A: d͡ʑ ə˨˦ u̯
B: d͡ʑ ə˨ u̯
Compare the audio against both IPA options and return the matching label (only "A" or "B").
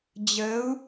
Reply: A